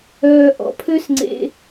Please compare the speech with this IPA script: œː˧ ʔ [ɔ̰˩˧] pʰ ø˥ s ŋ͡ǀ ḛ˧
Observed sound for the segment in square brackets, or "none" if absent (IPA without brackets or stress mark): ɔ̰˩˧